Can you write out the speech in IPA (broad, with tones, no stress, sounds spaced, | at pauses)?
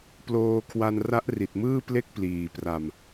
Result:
p l oː˧ kʰ w a˧ n r a˦˥ ʔ r i˨˩ t̚ m ɯː˥˩ p l e˥˩ k̚ p l iː˨˩ p r a˧ m